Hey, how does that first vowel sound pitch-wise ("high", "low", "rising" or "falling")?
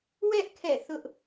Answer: high